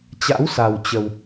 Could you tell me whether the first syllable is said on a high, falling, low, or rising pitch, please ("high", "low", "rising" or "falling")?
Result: rising